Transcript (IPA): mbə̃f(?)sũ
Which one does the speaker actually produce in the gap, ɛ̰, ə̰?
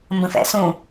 ɛ̰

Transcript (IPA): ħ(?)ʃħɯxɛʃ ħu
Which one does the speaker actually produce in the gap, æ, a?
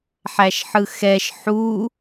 æ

